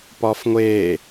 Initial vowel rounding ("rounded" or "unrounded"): rounded